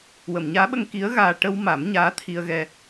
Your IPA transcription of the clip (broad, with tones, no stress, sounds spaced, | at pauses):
w ə˨˩˨ m ɲ aː˧˥ ɓ ə˧ ŋ k i˧˥ ə̯ ɣ aː˧ ʈ ə˧ w m a˨˩˦ m ɲ aː˧˥ t̪ʰ i˧ ə̯ ɣ ɛ˧